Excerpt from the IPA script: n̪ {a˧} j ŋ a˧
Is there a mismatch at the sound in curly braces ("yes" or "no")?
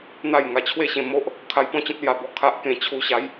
yes